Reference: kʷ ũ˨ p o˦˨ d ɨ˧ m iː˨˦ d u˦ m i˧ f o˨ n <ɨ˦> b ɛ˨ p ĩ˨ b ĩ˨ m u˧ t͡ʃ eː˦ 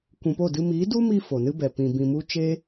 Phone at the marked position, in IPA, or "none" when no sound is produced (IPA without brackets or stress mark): ɨ˦